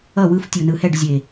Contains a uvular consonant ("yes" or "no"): no